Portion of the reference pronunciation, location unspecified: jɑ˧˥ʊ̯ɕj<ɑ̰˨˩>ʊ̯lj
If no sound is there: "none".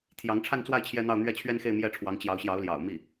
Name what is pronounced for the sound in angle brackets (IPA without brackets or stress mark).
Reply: ɑ˧˥